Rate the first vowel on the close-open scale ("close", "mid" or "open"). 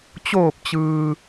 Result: mid